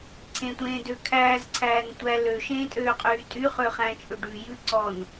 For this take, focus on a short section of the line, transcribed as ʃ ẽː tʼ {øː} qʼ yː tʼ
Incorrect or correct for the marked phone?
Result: correct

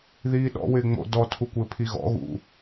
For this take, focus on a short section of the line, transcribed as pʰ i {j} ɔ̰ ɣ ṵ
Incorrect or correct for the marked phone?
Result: incorrect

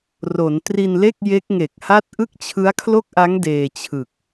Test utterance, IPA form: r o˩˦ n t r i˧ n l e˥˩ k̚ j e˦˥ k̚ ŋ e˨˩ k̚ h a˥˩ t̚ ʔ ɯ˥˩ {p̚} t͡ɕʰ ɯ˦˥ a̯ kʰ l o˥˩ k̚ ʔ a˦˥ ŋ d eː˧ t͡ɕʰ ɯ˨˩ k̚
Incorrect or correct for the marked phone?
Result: incorrect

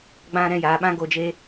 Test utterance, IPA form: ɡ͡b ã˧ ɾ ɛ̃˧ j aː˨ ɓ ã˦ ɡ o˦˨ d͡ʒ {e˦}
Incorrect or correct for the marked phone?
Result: correct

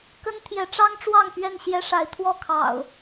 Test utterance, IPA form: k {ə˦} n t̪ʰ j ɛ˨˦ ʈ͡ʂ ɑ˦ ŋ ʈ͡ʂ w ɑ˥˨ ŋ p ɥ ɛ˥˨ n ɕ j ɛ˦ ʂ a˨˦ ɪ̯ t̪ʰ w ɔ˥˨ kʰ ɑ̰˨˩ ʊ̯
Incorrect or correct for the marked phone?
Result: correct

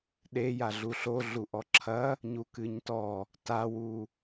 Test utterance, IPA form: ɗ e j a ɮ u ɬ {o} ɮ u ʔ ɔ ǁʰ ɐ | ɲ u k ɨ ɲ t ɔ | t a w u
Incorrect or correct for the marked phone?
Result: correct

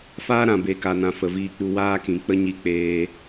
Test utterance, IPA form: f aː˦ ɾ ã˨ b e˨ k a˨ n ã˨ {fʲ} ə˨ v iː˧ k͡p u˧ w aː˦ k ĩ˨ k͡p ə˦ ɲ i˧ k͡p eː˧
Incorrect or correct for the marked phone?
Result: incorrect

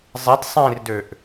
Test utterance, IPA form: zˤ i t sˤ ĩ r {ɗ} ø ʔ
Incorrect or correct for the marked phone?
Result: incorrect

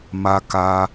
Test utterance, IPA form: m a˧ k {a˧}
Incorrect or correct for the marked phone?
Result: correct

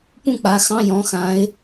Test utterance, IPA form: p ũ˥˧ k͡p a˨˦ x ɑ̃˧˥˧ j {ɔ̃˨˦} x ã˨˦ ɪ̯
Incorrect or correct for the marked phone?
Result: correct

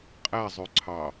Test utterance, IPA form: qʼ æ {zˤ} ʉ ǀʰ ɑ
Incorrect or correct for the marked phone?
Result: correct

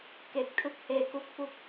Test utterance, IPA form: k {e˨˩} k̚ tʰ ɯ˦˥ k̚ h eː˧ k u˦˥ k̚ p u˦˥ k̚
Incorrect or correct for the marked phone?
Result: correct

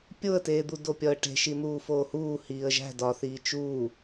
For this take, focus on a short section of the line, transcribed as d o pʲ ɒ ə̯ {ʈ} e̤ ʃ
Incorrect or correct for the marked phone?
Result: correct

